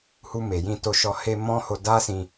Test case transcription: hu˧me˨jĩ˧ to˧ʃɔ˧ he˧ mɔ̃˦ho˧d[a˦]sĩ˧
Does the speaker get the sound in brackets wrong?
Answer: no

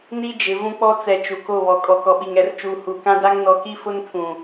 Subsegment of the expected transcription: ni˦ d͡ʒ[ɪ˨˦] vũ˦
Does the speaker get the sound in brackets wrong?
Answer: no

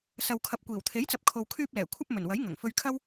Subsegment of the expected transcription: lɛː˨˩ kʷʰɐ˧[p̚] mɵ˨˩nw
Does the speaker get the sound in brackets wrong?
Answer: no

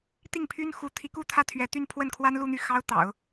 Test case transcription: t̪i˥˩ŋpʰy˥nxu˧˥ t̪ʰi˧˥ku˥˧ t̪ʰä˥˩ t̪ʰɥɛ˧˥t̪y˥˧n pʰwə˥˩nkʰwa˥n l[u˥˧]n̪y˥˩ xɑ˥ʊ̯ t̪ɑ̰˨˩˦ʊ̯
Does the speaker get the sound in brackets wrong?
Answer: no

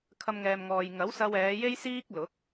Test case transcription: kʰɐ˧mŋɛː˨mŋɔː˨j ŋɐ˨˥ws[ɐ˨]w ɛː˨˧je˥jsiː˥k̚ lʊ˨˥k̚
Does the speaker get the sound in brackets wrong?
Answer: yes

